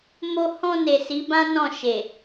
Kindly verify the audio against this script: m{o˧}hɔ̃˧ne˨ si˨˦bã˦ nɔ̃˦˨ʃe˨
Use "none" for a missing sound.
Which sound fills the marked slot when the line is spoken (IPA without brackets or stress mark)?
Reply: o˧